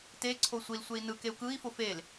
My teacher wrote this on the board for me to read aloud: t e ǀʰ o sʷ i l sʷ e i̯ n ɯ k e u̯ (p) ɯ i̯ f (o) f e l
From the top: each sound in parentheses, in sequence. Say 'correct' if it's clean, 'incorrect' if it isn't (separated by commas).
incorrect, correct